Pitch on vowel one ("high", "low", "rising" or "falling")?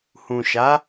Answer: low